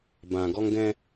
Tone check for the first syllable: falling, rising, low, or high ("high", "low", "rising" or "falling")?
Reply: low